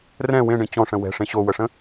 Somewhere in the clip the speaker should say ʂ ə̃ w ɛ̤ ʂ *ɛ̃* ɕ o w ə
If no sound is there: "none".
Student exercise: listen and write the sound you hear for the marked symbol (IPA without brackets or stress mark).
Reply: ẽ